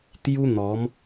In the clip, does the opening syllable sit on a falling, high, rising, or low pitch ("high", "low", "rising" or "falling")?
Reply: high